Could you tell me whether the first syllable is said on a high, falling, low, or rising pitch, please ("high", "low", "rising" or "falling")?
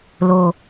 low